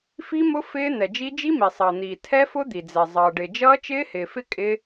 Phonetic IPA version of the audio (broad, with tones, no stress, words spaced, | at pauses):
fi˦˥mʊ˦˥ fɪː˦˥ n̪ɛ˩d͡ʒi˦˥ d͡ʒi˦˥mi˩sˤʌː˩n̪iː˩ tʰɛ˦˥fʊ˦˥d̪i˩d͡zɛ˩ zˤʌː˩ɖɪ˩ d͡ʒʌː˦˥t͡ʃɪː˦˥hɪː˩fɪ˦˥ kʼɪ˦˥